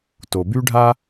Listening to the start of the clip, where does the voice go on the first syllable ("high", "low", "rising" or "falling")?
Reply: low